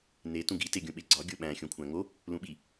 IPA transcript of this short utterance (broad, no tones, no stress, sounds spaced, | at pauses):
n e t ũ ɡ i t e ɡʲ ũ ɓ e ɡ͡ǀ ɒ ɡʲ o ɓ æ̃ xʲ õ kʷʰ æ̃ ŋ o | l ũ ɓ i